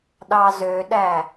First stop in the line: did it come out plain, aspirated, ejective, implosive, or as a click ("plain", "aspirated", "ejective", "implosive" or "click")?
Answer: implosive